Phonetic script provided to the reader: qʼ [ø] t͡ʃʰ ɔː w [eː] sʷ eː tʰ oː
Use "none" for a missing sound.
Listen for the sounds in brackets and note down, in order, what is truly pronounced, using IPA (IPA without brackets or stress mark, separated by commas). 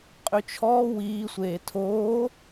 ø, iː